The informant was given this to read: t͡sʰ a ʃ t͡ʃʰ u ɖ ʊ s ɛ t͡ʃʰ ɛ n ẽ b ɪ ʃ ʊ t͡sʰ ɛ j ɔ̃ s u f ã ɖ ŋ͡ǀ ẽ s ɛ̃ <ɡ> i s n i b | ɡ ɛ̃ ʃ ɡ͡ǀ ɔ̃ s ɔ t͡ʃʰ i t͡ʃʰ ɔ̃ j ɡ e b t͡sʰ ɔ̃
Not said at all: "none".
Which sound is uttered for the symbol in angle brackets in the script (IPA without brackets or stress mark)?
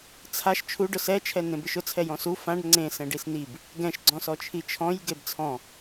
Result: ɖ